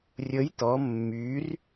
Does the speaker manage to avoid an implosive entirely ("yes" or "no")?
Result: yes